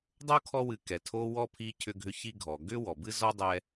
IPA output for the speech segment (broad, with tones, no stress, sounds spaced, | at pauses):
dˤ o˥ kʰ ɔ˦ w ɨ˨ k ɛ˩ tʰ o˦ w ɔ˥ pʰ i˦ cʰ ʏ˦ ɡʱ ʏ˦ ç i˦ ɡʱ ɔ˩ ɡ ʏ˥ w ɔ˩ b ɨ˥ z ɔ˥ dˤ ɛ˦